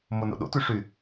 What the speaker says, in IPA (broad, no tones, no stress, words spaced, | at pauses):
mono̰ɗo̰tʉ ʂy